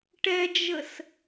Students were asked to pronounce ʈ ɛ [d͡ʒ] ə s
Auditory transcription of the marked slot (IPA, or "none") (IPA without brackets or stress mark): d͡ʒ